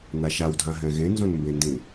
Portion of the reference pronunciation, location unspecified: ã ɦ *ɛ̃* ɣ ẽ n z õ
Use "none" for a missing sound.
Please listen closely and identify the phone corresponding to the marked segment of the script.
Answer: ɛ̃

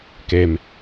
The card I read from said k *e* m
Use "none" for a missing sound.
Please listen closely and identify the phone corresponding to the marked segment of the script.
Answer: e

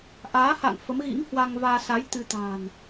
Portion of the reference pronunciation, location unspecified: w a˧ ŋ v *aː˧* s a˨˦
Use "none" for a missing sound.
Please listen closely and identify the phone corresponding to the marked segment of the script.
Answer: aː˧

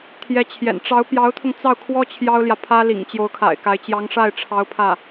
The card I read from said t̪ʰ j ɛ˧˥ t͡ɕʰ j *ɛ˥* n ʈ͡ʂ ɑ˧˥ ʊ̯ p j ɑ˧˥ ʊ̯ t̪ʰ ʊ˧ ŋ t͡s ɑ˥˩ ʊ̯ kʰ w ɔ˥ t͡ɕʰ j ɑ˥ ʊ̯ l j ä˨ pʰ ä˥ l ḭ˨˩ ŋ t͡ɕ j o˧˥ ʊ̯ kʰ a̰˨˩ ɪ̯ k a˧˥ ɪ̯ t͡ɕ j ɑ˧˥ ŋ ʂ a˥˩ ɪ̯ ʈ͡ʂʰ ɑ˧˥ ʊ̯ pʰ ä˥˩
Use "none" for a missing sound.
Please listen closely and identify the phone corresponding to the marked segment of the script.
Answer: ɛ̰˨˩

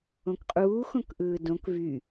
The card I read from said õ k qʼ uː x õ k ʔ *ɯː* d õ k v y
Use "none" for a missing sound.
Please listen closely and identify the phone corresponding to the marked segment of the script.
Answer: ɯː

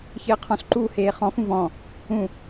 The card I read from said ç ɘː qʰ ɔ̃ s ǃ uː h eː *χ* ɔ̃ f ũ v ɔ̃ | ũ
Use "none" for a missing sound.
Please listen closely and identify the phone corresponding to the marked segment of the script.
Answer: χ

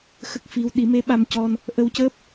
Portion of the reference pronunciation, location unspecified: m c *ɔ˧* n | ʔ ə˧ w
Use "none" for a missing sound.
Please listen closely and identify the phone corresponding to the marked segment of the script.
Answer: ɔ˧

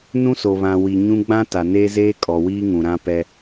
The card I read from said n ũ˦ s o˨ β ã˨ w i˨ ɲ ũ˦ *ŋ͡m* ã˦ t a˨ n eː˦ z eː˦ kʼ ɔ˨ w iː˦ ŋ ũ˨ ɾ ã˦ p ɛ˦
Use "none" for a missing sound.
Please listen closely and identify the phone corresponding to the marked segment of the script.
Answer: ɡ͡b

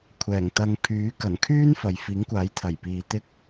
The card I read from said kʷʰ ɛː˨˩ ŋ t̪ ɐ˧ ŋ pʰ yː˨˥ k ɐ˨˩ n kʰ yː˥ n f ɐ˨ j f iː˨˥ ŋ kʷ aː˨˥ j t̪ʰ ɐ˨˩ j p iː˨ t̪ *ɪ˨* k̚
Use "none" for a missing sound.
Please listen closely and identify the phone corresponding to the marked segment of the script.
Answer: ɪ˥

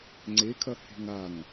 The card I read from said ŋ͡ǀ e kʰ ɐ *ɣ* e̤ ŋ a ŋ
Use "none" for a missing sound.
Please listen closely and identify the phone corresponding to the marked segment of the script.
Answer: h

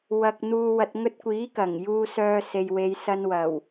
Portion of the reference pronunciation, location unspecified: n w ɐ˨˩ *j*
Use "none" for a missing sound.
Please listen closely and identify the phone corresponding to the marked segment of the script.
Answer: w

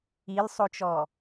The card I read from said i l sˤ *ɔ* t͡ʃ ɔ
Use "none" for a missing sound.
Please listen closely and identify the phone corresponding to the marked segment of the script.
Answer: o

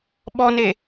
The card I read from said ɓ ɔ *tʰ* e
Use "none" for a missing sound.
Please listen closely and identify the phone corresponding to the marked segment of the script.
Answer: n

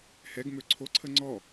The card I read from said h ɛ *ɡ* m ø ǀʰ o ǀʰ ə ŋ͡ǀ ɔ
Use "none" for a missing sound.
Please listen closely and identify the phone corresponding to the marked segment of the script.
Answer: ɡ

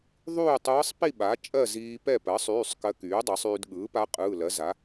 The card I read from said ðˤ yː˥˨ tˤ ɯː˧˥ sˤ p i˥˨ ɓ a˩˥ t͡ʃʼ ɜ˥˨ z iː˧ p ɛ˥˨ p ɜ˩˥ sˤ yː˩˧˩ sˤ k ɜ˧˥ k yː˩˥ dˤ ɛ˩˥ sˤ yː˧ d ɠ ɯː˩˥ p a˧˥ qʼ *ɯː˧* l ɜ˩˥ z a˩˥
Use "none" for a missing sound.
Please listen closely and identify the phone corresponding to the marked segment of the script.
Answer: ɯː˩˧˩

